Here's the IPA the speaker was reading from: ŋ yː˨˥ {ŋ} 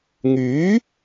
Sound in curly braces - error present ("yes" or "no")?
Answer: yes